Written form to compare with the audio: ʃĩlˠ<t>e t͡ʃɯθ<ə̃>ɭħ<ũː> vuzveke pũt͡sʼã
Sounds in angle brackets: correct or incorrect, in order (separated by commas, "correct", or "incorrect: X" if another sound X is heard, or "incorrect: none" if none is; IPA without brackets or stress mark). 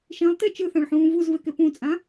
correct, incorrect: ã, correct